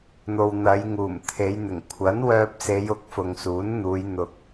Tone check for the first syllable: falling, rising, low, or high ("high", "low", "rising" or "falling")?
low